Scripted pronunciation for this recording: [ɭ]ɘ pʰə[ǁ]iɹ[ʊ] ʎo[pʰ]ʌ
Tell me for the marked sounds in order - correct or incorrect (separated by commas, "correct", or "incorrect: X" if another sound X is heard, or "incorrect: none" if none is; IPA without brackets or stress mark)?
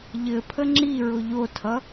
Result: incorrect: ʎ, incorrect: ŋ͡ǁ, correct, incorrect: tʰ